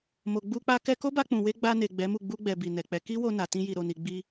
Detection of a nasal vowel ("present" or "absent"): present